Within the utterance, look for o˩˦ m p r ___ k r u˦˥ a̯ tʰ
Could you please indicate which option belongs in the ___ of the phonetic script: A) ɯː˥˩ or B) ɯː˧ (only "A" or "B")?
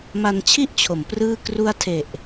A